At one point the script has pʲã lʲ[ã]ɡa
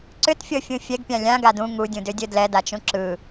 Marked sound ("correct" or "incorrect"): correct